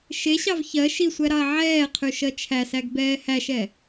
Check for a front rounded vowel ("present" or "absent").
present